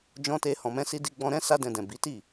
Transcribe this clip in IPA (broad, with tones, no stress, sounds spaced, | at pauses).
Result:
d͡ʒ ɔ̃˦ t e˦ h ɔ̃˧ m ɛ̃˦ s i˦ d i˦ ɡ͡b ɔ̃˧ ɾ ɛ̃˦ s a˦ d ɛ̃˧ d ɛ̃˨ b i˨˦ t i˦˨